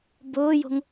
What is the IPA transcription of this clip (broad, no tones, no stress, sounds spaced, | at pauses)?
b ʊː j o̤ ŋ